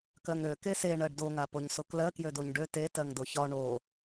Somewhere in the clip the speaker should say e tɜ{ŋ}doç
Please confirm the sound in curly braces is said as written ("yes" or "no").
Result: yes